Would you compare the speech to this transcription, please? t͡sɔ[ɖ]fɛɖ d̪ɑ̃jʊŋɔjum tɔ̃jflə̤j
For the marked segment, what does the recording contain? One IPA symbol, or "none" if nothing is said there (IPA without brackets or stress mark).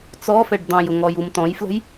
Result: none